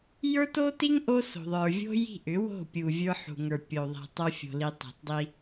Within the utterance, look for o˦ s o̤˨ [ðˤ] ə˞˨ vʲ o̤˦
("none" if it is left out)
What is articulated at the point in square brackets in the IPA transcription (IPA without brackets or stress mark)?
ðˤ